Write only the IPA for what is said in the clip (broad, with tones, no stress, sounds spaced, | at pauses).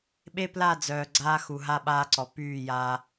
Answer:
ɓ e˦ p l a˦˨ d͡z œː˨ ɡ͡ǀ aː˦ x u˨ ɦ a˦ ɓ aː˦ ǀ ɔ˨ p yː˦˨ j a˦